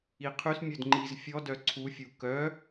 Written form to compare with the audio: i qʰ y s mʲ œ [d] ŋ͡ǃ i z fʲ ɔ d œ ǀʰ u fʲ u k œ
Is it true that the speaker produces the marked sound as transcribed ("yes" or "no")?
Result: yes